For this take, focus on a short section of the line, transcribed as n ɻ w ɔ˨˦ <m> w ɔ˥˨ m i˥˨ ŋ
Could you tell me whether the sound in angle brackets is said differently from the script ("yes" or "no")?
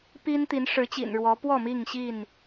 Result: yes